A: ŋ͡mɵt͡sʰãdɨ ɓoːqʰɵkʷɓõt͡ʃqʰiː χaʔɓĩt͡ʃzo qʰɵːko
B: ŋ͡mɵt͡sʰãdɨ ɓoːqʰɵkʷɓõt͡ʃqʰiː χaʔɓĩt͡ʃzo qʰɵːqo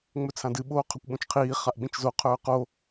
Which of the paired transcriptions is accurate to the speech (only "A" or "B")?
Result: B